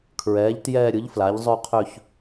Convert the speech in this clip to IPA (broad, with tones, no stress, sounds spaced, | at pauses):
kʰ ɹ ɛː˩˥ ʎ t j ɛː˥˧ ɾʲ ɯ˩˥ ʎ f l a˩˥ ʎ zˤ ø˥˧ qʰ ø˥˧ ç